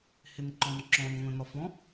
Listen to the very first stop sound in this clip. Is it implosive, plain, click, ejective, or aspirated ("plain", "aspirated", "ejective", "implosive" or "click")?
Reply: click